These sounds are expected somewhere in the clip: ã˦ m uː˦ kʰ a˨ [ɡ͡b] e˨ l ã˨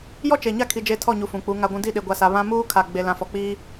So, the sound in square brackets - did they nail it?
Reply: yes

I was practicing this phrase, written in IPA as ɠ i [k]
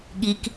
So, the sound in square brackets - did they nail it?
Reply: yes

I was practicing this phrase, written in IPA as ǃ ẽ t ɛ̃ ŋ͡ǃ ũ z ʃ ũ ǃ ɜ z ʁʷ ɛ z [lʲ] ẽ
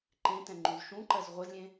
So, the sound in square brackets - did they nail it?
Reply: yes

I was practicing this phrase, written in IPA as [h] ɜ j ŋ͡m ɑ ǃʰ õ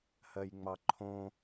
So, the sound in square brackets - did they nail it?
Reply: yes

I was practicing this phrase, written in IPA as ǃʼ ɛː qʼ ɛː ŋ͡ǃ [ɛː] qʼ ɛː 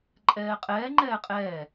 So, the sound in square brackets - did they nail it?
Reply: yes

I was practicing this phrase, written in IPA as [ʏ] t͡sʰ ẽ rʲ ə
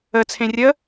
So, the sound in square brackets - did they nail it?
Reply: no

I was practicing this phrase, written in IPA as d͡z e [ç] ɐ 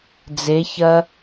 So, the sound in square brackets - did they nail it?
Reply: yes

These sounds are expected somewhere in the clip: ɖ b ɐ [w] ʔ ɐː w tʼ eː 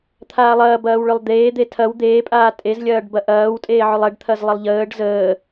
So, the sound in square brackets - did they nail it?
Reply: no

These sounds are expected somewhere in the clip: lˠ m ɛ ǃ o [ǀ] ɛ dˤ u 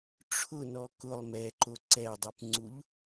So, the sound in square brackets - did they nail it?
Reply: yes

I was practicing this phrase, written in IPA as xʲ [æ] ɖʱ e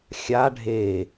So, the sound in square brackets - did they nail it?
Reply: no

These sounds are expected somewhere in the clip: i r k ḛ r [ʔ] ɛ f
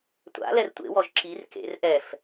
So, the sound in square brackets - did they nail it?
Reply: yes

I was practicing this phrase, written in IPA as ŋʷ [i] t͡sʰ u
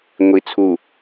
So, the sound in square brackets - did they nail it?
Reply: yes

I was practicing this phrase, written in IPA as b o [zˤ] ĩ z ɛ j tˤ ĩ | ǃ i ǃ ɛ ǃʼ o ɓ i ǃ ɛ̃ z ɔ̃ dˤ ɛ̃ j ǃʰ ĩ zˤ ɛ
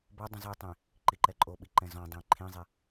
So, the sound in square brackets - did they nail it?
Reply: no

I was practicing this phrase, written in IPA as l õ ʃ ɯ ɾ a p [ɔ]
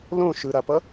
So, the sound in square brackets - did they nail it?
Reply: no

